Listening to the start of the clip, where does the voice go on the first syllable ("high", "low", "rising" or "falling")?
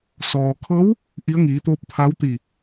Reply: low